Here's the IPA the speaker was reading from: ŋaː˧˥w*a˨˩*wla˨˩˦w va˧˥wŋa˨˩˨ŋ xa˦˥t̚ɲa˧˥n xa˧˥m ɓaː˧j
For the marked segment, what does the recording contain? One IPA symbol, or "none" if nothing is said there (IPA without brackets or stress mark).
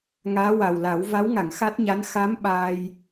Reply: a˨˩